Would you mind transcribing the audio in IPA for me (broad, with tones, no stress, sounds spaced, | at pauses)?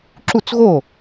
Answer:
ǁ u˥˩ t͡s ɣ o˥˩